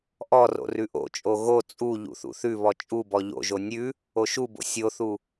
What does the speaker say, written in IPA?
ʔɔro̰ rʉʔo̰t͡ʃʼo ɣo t͡sʼu ʎṵθṵθʉβɔ t͡ʃʼubɔ ʎo̰ʒo nʲʉ | oʃubo̰ sʲoθu

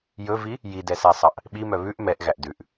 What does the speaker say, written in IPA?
jɵvi | jidɛsæsˤɑʔ | ɓimœ βʉʔ mɛʔɣæʔ dʉʔ

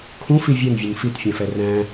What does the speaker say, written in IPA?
kʰũfi vʲɛnvʲun fitfʲɛ̃fɛ ræ̃

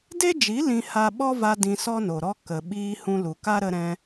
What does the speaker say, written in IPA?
de˦d͡ʒi˨˦ lĩ˧ ha˧ɓɔ˦va˧ dĩ˧sɔ˦no˨ɾɔ˦ kə˨ ɓiː˧hũ˧lu˨ka˦ ɾə˧ɾɛ̃˧

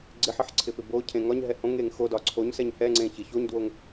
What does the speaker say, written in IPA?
ɡ͡ǀɪħɪħ ǀʰɪpɪbocʰẽ ŋɒɲɦɛ hõŋeŋ xo dɒǀʰoɲsɛɲ hɛŋ͡ǀẽ çɪ çoɲdwoŋ

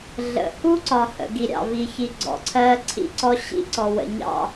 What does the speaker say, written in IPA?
ɮə̰˨ hu˦ǀɒ˨hə̰˨ ɡi˨ɾʲɑ̰˨vi˨ çi˨ ɡ͡ǀɔ̰˨ǀʰɜ˦ ǀʰḭ˦ǀɔ˦ ɕḭ˦ǀɔ˨ wə̰˨ɲɑ̰˦˨

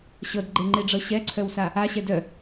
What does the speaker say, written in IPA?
ɕɤdɡ͡ǃeŋ͡ǃeɖ͡ʐɤ ɕɛǀʰœwsa | aɕɛ dœ

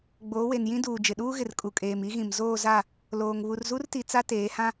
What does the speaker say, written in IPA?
ɡ͡boː˨˦we˨njĩ˦ duː˨ d͡ʒɪ˨ɗuː˦ɣɪ˨r kʼu˨kʼeː˨mi˦ɣĩ˨m zoː˦˨za˦˨ | loː˨ŋ βu˨rzu˦rti˨ t͡sa˦teː˨˦hã˦

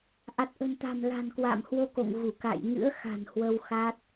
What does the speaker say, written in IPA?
ʔa˨˩t̚ʔə̤˨˩nt̪a̤˨˩m la̤˨˩nkwa̰ː˧˨m hwo˧ko̰˧˨ŋ ɣu˧˩ ka̰˧˨j ŋɨ̰˧˥ə̯xa̤˨˩n hwə˧wxaː˦˥t̚

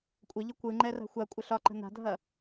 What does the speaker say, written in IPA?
kʷʼəʎə kʷɯŋ͡ǃɛra̤ xʷakʷʼə ɬɒǃə̤ na̤dʱɐ

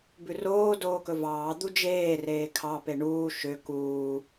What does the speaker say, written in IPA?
bʉroː doːkɵvɑː d̪ud͡ʒeː reːkʰɑ peɳuː ʃø kuː

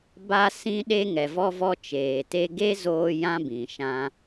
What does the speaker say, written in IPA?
ba˧ sĩ˦ɗe˦ ŋɛ˨vɔ˦vɔ˦ t͡ʃeː˨te˦ ɡe˦zoː˧ jã˦bĩ˨ ʃã˦

